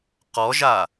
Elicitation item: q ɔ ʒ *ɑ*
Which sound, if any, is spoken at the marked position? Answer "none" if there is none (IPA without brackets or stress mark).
a